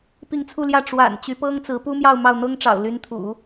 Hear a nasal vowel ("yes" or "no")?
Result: no